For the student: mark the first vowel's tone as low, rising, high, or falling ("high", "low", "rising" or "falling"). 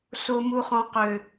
low